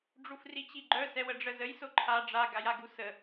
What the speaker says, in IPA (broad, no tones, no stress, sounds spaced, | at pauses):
ɖ͡ʐ u f r i t͡ɕ i ɡ͡ǃ œ s ɛ w ə ɖ͡ʐ ə z ə j s o ǃʰ a ɖ͡ʐ a ɡ a j a ɡ u s ə